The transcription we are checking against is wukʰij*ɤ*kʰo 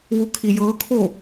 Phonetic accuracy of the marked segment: correct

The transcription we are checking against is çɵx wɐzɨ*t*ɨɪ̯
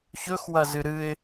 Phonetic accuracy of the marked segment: incorrect: ɾ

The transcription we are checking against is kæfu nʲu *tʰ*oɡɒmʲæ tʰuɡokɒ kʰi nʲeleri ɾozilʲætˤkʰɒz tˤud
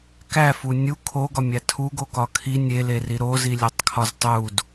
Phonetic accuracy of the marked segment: incorrect: kʰ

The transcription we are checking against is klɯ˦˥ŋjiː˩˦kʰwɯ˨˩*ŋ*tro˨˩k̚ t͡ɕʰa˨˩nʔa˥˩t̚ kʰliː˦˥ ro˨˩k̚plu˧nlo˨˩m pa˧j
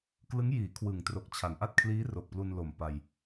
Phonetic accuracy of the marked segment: correct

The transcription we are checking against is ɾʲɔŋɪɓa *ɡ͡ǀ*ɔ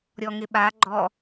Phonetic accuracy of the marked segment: incorrect: ɡ͡ǃ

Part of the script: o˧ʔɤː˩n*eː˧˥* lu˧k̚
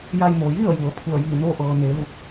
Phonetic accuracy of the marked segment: incorrect: eː˩˧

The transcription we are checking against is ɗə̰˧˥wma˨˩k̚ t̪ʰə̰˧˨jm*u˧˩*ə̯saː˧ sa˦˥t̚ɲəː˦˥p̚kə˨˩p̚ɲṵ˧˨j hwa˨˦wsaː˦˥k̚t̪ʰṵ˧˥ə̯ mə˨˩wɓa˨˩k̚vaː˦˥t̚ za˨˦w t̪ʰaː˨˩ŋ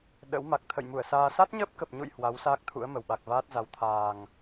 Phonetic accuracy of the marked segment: correct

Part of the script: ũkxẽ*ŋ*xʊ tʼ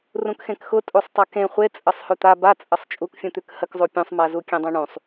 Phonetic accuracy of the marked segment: incorrect: k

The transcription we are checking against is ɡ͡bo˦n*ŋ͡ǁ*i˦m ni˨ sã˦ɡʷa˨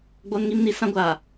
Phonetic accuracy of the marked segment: incorrect: ŋ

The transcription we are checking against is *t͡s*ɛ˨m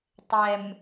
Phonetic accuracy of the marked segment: incorrect: tˤ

